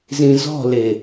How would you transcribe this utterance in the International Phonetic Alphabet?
zĩzɔ̤le

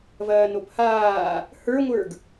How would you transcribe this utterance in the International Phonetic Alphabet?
vɐːnophaː | hə˞ŋʷə˞ɡ

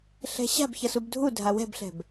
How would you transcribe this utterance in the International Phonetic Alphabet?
ɬɛ̤ɕa̤b çʌsubdʱu dʱawɛ̤bɬɛ̤b

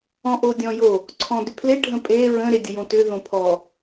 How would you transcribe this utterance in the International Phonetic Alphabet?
ɔ̃ʔodʲɔ̃jo | ǀʰɔ̃dʏpʰle ɖʱə̃pʼe ɹə̃ ɾedʲəjõtʏ ðõpʰɔ

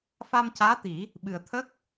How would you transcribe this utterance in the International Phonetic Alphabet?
fa˧mcaː˧˥t̪i˨˩˦ | ɓɨ˨˩ə̯t̪ʰə˦˥k̚

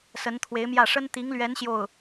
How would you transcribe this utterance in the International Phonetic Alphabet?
sə˧˥nt̪ʰwe˧˥ɪ̯mjä˥˩ ʂə˥nt̪i˧˥ŋlɥɛ˧˥n ɕjo˥˩ʊ̯

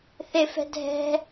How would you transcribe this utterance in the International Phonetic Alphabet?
θɪfɛ̤ dʱɛ̤

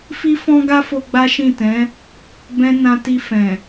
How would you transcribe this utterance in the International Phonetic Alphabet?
fi˦fɔ̃˦ɡa˦fo˧ ɡ͡ba˦ʃĩ˦˨tɛ̃˨˦ | bɛ̃˦ nã˦ ti˧fɛ̃˨

